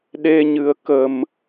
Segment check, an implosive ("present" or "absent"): present